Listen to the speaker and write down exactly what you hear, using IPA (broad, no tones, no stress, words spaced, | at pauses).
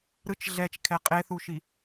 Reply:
ɾɯt͡ʃ ɮɛt͡ʃkʰɛ qʼeθuʃi